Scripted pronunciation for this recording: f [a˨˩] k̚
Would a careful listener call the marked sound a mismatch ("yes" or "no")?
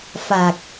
no